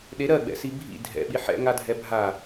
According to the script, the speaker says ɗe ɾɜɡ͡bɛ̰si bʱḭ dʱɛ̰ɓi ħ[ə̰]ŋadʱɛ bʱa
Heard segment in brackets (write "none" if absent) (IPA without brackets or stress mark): ɛ̰